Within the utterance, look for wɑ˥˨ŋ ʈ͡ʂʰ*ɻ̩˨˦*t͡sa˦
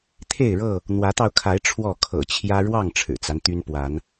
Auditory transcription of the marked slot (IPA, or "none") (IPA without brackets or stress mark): ɻ̩˨˩